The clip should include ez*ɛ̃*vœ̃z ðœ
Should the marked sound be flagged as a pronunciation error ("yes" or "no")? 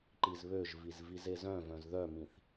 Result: yes